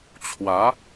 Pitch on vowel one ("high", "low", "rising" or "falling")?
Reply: rising